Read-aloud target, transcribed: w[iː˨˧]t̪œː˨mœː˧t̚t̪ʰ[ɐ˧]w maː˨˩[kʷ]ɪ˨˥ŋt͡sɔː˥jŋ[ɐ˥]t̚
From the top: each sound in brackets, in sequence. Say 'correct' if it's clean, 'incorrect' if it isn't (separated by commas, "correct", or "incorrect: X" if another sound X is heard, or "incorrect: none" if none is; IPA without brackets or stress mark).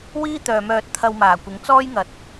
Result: incorrect: iː˥, correct, correct, incorrect: ɐ˨